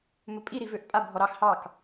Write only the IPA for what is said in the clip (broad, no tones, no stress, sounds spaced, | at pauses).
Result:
m ɵ pʼ i ɾ i v ø ʔ pʼ a bʱ ɔ ɾ ɑ x h ɑ k